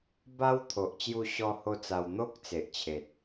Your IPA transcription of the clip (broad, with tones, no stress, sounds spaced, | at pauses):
b a˦ w t̪ʰ o˨ ʔ t͡ɕ j u˥˧ ɕ ɔ˦ h o˦ t͡s a˧ w n̪ o˦ k̚ t͡s e˨ ʔ t͡ɕʰ e˨ t̚